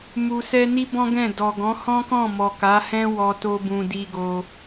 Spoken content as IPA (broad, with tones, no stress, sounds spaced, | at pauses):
m u˨ s ɛ˧ n i˦ b ɔ̃˦ ɡ ɛ̃˦˨ d ɔ˨ ɡ ɔ̃˨˦ h ɔ̃˦ k ɔ̃˦˨ m ɔ˨ k a˨˦ h ɛ̃˦ w ɔ˧ t o˧ b ũ˨ d i˧ ɡ o˧